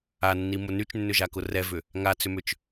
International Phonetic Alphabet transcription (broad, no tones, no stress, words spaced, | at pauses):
anːimʊ nyt͡ʃnːʏʒakʊ rɛvʏ | ŋat͡sʏmʏt͡ʃ